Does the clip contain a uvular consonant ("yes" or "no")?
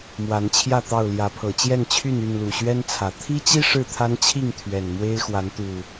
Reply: no